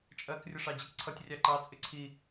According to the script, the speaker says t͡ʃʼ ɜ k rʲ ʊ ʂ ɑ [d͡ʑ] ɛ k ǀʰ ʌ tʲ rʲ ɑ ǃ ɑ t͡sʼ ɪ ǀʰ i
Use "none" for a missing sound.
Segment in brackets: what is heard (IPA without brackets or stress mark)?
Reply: d͡ʑ